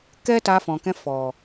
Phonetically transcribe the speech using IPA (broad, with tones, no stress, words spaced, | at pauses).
kɛ˦ ta˧fɔ̃˨kɛ̃˧ fɔ˨